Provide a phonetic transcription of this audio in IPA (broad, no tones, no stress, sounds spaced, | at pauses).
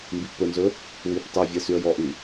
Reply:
m b i ʔ p ɵ n z ɵ | w i p tˤ e vʲ ɛ s y ə̯ j ɔ ʔ y